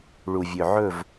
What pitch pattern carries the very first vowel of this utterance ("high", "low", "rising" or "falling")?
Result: low